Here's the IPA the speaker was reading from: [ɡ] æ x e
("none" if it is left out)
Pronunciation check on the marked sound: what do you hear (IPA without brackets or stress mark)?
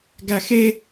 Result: ɡ